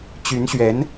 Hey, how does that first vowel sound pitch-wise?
rising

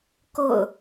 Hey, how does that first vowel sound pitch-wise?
falling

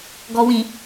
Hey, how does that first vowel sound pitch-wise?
low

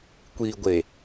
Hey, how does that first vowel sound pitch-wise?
low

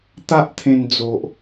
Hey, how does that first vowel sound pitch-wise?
high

